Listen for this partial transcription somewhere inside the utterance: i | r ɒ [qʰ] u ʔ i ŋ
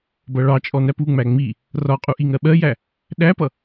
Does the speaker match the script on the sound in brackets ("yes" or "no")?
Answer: no